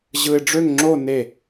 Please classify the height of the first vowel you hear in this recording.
high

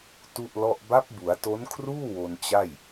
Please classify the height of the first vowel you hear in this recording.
high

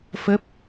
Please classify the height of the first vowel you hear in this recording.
mid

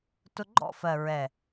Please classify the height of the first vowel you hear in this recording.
high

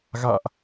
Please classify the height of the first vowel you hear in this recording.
low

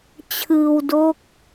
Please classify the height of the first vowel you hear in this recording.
high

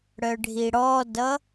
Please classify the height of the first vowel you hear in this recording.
mid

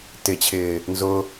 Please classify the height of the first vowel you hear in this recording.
high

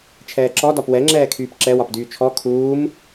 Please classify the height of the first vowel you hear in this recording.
mid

